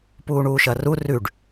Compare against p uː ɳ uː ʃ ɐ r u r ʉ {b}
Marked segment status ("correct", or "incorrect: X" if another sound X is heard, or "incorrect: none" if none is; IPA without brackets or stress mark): incorrect: ɖ